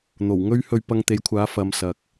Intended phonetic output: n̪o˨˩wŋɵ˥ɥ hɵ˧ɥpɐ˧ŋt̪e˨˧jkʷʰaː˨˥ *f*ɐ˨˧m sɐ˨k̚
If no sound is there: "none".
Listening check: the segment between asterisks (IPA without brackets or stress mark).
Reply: f